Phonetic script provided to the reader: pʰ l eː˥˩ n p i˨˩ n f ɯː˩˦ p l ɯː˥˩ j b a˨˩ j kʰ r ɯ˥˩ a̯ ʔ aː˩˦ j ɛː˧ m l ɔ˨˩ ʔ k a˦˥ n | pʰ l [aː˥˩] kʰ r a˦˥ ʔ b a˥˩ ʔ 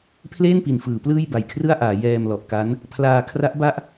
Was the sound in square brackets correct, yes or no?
no